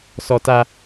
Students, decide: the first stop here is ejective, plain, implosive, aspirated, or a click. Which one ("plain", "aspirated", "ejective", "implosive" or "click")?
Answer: plain